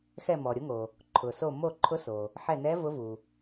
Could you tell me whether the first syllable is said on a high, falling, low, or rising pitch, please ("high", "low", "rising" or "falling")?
falling